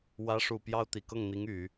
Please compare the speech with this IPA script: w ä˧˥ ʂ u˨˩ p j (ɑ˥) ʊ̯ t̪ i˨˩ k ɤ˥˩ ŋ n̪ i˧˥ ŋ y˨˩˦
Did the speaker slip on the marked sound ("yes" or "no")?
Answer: no